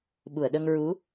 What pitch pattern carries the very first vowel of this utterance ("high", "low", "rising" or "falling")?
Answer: low